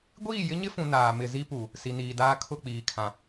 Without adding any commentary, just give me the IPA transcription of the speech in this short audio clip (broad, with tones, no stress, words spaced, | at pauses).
ɡʷiː˦˨jɪ˦ɲɪ˦fũ˨ naː˨ mɪ˨ zi˦pu˨ | si˨niː˨daː˦ kʰʊ˦˨k͡piː˨kʰã˨